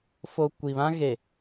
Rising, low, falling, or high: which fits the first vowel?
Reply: high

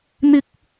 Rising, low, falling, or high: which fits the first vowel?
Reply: high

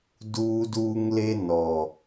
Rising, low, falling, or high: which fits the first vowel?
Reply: high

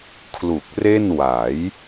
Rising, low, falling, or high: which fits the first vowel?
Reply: low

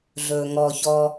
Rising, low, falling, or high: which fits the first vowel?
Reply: low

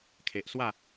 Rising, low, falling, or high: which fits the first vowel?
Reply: low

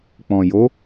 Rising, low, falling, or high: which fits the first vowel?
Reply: low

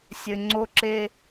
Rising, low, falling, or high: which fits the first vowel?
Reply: low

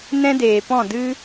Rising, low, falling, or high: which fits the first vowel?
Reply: high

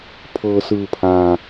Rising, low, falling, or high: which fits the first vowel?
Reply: low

